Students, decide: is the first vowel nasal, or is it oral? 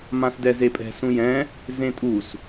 nasal